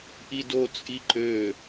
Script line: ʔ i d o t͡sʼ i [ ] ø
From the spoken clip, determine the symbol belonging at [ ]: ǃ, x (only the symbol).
ǃ